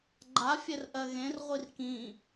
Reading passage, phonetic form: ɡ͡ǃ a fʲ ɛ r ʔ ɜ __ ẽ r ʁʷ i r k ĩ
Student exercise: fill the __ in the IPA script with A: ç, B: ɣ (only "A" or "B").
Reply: B